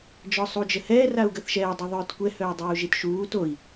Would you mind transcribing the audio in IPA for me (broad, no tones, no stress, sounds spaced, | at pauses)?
d͡ʒ ɔ sˤ u d͡ʒ ə h ɛː r a u̯ ɡ ə θ ʃ ɛː dˤ i ðˤ œː t kʷ ɛ h œː dˤ uː ʒ i t ʃ uː t o i̯